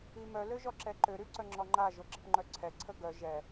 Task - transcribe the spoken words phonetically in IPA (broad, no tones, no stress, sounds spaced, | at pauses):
i m œ l ø ʒ ɔ ǁ ɛ ǃ ø ɾ y ǀ œ ŋ͡ǁ ɔ ŋ͡ǃ a ʒ o ɡ͡ǁ ə p ŋ͡ǃ œ ǀʰ ɛ ǀʰ ə ɡ œ ʒ ɛ